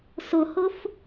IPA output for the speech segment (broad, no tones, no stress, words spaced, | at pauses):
sʊhʊf